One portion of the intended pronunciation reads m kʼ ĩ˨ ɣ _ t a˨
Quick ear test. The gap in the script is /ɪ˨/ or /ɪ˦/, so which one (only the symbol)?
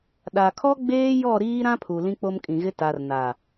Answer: ɪ˦